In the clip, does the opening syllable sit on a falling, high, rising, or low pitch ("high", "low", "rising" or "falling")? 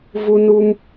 high